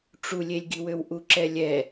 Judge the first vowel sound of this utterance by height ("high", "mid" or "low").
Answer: high